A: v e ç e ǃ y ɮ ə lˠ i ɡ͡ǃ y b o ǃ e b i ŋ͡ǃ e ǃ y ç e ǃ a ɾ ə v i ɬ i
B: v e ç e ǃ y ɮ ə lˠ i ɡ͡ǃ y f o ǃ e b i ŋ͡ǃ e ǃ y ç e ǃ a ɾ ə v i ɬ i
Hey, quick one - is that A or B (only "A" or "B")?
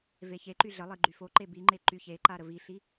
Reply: B